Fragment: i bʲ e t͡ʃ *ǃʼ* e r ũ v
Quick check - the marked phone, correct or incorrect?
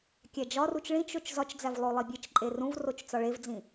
correct